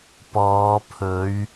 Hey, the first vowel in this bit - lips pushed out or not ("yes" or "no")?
yes